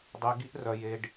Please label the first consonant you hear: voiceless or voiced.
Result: voiced